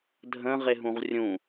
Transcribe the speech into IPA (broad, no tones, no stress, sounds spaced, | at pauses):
dʱ ə̃ ʁ e ɦ ũ ʁ rʲ ũ